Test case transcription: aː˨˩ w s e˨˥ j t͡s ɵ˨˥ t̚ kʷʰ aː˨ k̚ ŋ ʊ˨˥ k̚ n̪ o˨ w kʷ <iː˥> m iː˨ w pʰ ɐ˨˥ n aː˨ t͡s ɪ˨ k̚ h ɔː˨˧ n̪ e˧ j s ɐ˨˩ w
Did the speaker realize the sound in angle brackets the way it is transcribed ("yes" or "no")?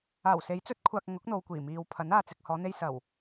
no